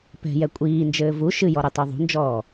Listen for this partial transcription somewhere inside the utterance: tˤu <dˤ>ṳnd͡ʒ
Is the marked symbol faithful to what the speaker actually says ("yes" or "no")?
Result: no